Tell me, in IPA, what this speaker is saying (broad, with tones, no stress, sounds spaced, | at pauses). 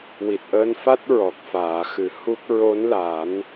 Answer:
w i˨˩ t̚ ʔ əː˧ n f a˦˥ t̚ ɹ ɔ˨˩ k̚ f aː˨˩˨ x ɨ˨˩˦ h u˦˥ k̚ ɹ o˧˥ n l a˨˩˦ n